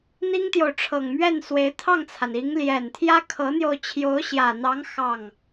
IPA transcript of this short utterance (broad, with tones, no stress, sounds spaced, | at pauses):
n̪ i˥ ŋ t̪ j o˨ ʊ̯ ʈ͡ʂʰ ɤ˨˩ ŋ m ɥ ɛ˥˩ n s w e˧˥ ɪ̯ t̪ʰ ɑ˥˩ ŋ t͡sʰ a˩ n i˧˥ ŋ l j ɛ˨˩ n t̪ʰ j ä˥ kʰ ɤ˧˥ n̪ j o˧ ʊ̯ t͡ɕʰ j o˧˥ ʊ̯ ɕ j ä˨˩ n̪ ɑ˧˥ ŋ x ɑ˥˩ ŋ